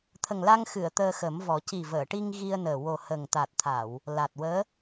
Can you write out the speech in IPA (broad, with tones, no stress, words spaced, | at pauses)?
t̪ʰə˨˩ŋla˧ŋ xɨ˨˩˨ə̯ t̪əː˧xə˨˩˦mvɔ˨˩˦ ci˨˩vəː˨˩˨ ʈi˧ŋ ɣi˧ə̯nəː˨˩ wo˨˩hə˨˩ŋ t̪a˨˩t̚t̪ʰa˨˩˨w | la˨˩t̚wəː˧˥